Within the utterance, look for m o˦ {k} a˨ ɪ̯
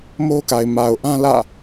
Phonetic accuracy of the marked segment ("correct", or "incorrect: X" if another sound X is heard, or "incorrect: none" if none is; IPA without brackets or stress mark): correct